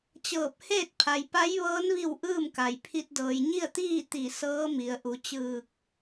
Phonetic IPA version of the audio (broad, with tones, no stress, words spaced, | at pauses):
t͡ɕɤː˧˩p̚ heː˥˨t̚pʰa˩jpa˧˥jʋɤː˧˥n ʋi˥˨wʔɯː˥˨mka˩j pʰi˧t̚dɤː˩j ɲi˥˨ə̯t̪iː˥˨ t̪i˧˩ sɤː˧˥mi˩˧ə̯ʔu˩˧ t͡ɕɯː˧˩k̚